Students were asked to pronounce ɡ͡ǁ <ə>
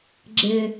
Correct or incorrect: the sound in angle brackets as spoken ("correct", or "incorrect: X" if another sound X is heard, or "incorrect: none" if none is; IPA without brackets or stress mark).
incorrect: ɪ